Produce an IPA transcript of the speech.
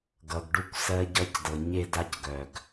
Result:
ɡ ʌ˩ ɡ ɖ u˧ kʷ s ɜ˧ ɟ ʌ˧ c d ɤ˩ ɲ e˧ d a˧ c ɡ œ˩ ɡ

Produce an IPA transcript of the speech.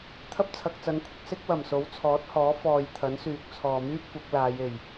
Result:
t̪ʰ ɐ˥ p̚ t͡sʰ ɐ˨ k̚ t͡s ɐ˨˧ n kʷʰ ɪ˨ k̚ s ɪ˥ k̚ w ɐ˨˩ m s o˨˥ w t͡sʰ ɔː˨˥ t̚ h ɔː˨˥ f ɔː˨ j t̪ʰ ɐ˨˥ n s yː˨ k̚ t͡sʰ ɔː˨ m yː˥ p̚ kʷ ɐ˨˥ k̚ l aː˨˧ j e˨˩ j

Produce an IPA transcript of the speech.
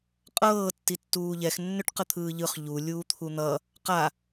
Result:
qʼ ɤː tː i tː uː ʎ ɛ x nː ʏ ʈ q ə t̪ʰ ɯː ʎ ɯ χ ʎ u lʲ uː t̪ʰ u n̪ ʌ | q a

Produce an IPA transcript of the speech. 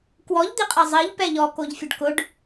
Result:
k w ɔ ʎ d̪ i qʼ ɛ zˤ i ʎ p ɛ ʎ ɔ k o ʎ fʲ o ɖ k ʊ ɖ

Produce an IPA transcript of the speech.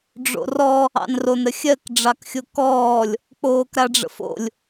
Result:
ɖ͡ʐ o̰ r ɔ | ɑ̰ n r o n ɾ ə xʲ ɜ k ɖ͡ʐ ɑ k xʲ o k ɔː lʲ | k͡p oː k ɾ a ɖ͡ʐ ə̰ f o̰ lʲ

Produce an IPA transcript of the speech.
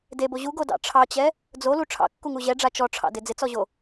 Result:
d e b o ʑ u ɡ o d ɑ̰ ʈ͡ʂʰ ɑ t͡ɕ ɛ | d͡z o l u ʈ͡ʂʰ ɑ̰ kː u ŋ u ʑ ɛ ɖ͡ʐ a t͡ʃ ɔ ʈ͡ʂʰ ɑ̰ d ɪ d͡z ɪ t͡s ɔ ʑ o

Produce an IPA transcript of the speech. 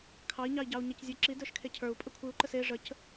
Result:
kʰ ɑ i̯ ɲ ɑ i̯ ɟ ɑ u̯ ɲ e c zʲ ə˞ ǁ i d ə˞ ʃ kʰ e cʰ ə˞ u̯ pʼ ə kʷʰ ɨ u̯ ǃ ə s e ʐ ə c

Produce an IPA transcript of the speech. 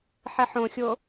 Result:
ħ ɛ ħ õ xʲ o

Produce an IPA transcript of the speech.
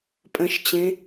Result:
pʼ ə̃ ʃ t͡ɕ ẽ

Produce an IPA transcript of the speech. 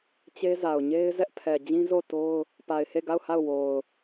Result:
t͡ɕ e˦ z a˨ ʊ̯ ɲ e˦ ɪ̯ z ɛ˦ ʔ pʰ ɛ˨ d͡ʑ ĩ˦ z o˦˨ t o˦ ʊ̯ | p a˨ ɪ̯ h e˦˨ ɡ a˦˨ ʊ̯ h a˦˨ ʊ̯ w o˨ ʊ̯

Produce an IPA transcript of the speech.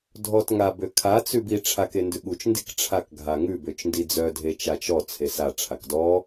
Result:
dʱ ɔ t ŋ a b ø kʰ a t͡s ʉ b i ʈ͡ʂʰ a k e n d ʉ ɠ u t͡ʃ n d i k ʈ͡ʂʰ a k ɡʱ a ŋ ʉ b ø t͡ʃ n d i d͡z œ dʱ e t͡ʃ a t͡ʃ ɔ t͡sʰ e s a ʈ͡ʂʰ a k d ɔ

